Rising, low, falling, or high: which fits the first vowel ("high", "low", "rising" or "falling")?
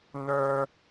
high